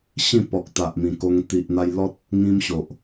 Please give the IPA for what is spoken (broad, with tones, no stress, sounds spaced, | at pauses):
ɕ ĩ˥˧ p ɔ˨ k̚ t̪ a˨ ʔ m ĩ˨˩ k o˧ ŋ t̪ i˨ ʔ n̪ a˧ j l ɔ˦ t̚ | ŋ ĩ˦ m ɕ o˨ ʔ